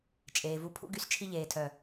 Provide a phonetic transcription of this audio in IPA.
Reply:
t͡ʃʼ eː˨ v u˧ pʰ ṵ˦ ɡ y˧ s t͡ʃʰ i˧ ʎ eː˨ tʰ œ˨

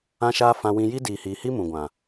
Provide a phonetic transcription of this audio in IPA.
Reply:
ã˧ ʃ aː˧ f ã˧ w ĩ˧ j i˦ d iː˨ h iː˨ h i˦ m ũ˨ ɡʷ ã˨

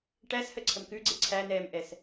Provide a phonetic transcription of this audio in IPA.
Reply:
ʈ æ s h ə ǀʰ ə m k ʉ ɡ͡ǀ e ǀʰ æ n ɛː m ʔ ɛ s

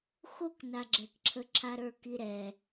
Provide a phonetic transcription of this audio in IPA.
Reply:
x o k n a ɡ͡ǁ ɛ k ǁʰ ə ǁʰ a ɾ ə˞ k i ɾ ɛ

